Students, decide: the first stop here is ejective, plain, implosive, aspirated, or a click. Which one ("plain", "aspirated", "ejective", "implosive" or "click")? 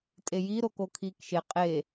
ejective